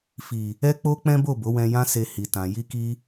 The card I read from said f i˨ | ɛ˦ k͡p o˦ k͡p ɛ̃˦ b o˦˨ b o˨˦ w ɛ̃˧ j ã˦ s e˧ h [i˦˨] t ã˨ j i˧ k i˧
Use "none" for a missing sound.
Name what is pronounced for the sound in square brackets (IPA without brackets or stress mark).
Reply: i˨